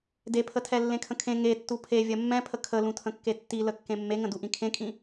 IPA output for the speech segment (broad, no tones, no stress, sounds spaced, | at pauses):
d e pʰ ə tʰ ɛ lː ẽ kʰ ə̃ kʰ ẽ ŋ e tː u pʰ e vʲ ɜ mː ɛ̃ pʰ ə kʰ ə l ũ tʰ ə̃ kː e tː i l ə kː ẽ mː e ŋ ə̃ d u ʔ ĩ kʰ ẽ kʼ ĩ